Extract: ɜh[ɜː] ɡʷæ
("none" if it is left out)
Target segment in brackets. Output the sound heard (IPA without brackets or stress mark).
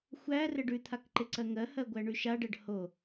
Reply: ɜ